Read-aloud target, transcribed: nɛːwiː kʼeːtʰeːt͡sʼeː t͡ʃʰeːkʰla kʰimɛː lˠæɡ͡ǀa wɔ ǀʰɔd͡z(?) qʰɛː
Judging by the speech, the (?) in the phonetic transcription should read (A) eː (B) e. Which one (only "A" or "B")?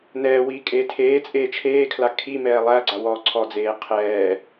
A